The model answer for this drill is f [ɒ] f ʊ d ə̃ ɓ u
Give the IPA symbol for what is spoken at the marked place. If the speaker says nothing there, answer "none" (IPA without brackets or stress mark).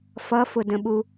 ʌ